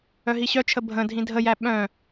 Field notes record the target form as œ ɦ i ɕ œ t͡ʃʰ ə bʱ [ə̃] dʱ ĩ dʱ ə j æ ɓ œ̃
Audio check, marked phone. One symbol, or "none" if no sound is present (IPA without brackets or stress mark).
ə̃